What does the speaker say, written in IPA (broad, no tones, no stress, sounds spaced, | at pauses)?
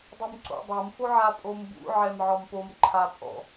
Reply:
dˤ ʊ m ǀ o̰ dˤ o m f o ʕ a pʼ o m b ṵ ʕ ɛ m ʕ ɔ m p o m ǃʰ a pʼ ɔ̰